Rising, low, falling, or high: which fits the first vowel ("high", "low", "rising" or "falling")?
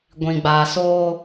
low